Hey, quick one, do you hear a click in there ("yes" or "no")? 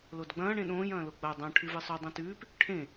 no